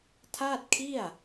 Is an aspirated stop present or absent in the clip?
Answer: present